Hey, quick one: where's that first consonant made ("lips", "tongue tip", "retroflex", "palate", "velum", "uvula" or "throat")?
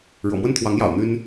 retroflex